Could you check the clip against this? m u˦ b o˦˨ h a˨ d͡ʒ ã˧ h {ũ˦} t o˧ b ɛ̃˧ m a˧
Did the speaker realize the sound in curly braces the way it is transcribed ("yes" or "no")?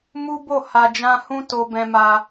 yes